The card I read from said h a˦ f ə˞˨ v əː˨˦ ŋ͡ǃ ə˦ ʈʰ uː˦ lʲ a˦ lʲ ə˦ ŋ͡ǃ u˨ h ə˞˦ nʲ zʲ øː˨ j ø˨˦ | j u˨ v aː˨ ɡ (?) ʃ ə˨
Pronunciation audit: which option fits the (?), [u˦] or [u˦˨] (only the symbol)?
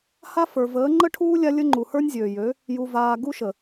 u˦